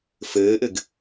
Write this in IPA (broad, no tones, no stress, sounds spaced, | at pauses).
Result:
f ɘː ʔ ɘ ɡ